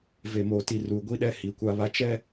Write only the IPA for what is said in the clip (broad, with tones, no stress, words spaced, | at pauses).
ve˨moː˨ ti˨ ruː˨ ɡʷi˦ɗɛ˦ hi˨˦kʷa˦βa˦ t͡ʃɛ˦